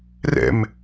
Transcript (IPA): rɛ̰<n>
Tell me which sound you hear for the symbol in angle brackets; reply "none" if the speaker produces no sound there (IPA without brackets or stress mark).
m